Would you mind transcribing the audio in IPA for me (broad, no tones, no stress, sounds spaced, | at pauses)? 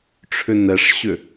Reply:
ʈ͡ʂʰ ʏ n ɛ ʂ ɕ ʏ